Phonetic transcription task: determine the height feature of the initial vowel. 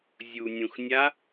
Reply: high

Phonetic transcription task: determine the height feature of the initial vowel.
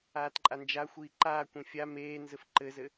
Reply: low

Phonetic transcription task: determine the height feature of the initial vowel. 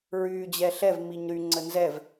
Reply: high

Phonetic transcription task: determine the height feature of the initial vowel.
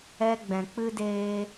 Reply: mid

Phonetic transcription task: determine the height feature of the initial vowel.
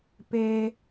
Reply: mid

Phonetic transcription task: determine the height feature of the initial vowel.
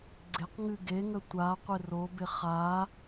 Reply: high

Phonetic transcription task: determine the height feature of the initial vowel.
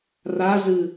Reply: low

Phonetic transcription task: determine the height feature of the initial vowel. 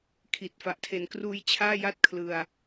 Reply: high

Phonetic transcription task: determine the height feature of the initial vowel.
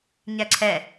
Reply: low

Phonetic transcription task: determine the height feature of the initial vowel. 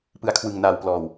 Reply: high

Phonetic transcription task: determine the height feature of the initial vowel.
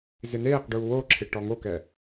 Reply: high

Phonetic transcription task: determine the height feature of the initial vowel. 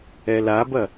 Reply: mid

